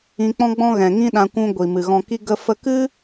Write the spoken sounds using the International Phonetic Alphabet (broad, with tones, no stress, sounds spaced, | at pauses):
ĩ˧ k͡p ɔ̃˦ ɡ͡b ɔ̃˦ ɣ ɛ̃˨ ŋ ĩ˦ ɗ ã˧ kʷ ũ˧ ɡʷ i˨ m ɨ˨ ɣ ɔ̃˧ k i˦ ɡ ə˦ f ə˦ k ɨ˦